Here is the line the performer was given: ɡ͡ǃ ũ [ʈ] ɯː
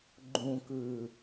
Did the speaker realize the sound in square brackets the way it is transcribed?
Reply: no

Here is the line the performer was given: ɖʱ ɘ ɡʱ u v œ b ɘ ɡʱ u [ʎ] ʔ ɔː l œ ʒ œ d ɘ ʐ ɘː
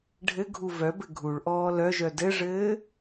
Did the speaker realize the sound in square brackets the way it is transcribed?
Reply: no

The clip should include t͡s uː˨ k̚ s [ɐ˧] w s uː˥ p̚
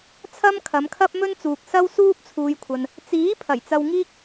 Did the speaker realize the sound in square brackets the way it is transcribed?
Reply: no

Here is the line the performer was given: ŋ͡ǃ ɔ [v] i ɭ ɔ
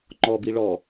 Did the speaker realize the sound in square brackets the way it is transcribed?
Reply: no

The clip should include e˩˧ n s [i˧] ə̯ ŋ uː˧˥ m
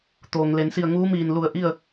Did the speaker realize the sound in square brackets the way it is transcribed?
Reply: no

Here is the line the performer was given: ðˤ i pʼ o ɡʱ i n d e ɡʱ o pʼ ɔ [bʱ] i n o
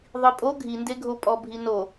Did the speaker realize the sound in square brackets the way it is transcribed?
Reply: yes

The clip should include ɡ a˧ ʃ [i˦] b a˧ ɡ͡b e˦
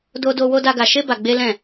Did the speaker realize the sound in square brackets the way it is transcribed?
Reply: no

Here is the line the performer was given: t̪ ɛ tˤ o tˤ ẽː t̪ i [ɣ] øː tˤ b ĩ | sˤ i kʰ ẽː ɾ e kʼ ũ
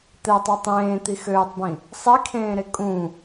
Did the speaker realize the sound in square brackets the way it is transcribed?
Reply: no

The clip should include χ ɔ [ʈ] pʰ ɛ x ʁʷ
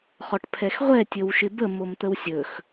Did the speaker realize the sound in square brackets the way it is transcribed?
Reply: yes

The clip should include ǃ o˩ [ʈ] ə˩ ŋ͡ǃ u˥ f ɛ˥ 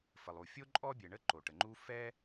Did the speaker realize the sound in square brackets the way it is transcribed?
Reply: yes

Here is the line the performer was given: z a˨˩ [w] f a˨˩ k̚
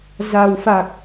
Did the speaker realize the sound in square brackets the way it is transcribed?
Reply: yes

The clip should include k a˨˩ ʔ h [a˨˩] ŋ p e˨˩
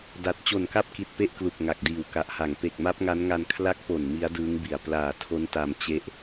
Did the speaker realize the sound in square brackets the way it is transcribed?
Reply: yes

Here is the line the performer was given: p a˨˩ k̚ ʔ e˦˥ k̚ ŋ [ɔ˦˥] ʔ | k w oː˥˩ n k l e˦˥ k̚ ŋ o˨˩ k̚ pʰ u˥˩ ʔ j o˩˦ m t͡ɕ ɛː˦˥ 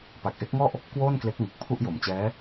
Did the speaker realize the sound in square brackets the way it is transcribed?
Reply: no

